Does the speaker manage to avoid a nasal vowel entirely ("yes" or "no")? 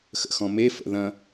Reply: no